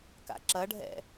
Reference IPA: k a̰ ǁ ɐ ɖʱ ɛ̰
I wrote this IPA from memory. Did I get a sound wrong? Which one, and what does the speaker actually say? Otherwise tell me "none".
none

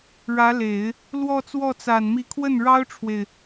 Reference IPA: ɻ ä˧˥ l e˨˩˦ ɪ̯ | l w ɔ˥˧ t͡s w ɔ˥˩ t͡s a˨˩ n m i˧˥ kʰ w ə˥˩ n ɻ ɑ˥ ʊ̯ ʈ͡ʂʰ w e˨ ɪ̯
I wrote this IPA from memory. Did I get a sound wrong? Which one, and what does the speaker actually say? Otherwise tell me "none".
none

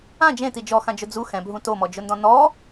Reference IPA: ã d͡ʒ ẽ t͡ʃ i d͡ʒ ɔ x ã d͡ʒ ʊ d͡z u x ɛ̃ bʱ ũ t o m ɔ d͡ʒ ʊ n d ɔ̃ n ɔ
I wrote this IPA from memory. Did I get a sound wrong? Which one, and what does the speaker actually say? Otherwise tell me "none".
t͡ʃ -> t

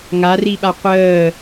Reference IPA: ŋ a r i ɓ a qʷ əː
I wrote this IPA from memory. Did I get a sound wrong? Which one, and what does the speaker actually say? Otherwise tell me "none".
none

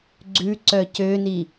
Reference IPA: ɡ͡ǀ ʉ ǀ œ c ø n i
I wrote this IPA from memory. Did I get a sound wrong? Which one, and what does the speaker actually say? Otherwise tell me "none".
none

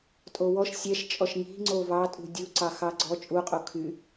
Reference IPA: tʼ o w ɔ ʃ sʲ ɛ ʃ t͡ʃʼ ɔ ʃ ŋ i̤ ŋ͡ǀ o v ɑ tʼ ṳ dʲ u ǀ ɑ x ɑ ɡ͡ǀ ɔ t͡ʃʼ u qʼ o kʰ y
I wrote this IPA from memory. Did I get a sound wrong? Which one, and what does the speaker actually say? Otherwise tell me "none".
none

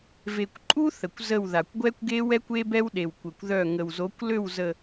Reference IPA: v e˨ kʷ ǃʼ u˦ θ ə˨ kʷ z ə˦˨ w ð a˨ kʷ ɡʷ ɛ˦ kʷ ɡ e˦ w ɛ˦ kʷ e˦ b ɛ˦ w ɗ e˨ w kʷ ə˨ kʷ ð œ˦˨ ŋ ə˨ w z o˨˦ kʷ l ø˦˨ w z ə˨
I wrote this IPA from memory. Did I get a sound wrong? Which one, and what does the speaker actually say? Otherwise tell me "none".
none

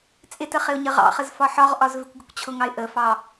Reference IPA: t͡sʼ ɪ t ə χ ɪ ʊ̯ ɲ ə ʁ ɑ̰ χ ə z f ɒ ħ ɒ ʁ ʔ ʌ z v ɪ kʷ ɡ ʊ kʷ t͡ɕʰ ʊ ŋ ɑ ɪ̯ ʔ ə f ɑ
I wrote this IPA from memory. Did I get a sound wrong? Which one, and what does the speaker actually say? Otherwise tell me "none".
ʌ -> ɒ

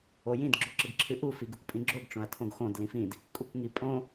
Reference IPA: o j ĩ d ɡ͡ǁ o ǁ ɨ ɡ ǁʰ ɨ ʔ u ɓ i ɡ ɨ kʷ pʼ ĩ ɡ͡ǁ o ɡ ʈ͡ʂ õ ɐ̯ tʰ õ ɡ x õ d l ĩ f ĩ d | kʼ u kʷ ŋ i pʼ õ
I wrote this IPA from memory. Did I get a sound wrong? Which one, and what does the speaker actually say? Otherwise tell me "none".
ɓ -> f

